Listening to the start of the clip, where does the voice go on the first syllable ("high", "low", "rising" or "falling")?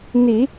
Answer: low